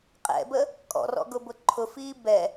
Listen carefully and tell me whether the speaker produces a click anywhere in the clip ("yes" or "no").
yes